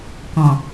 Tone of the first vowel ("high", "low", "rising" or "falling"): low